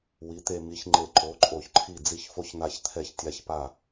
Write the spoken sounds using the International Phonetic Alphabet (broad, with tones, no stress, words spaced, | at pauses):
wi˨˥t̪e˧mi˨˥ç ŋ͡ǃe˧˩ǃo˨˥ǃʼo˧˩ç ǃʰi˧˩d͡zi˧˩çfo˧çn̪a˧˩ç t̪ʰɛ˧˩çtʲa˧˩çpa˧˩